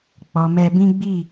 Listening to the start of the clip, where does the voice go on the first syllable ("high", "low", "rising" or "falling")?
low